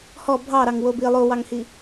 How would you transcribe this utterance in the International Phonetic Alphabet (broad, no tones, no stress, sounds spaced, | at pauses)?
h ɔ bʱ ɑ ɾ ɑ ŋ w o b i lˠ o w ɑ ŋ h i